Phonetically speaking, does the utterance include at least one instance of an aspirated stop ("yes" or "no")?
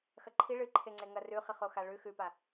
yes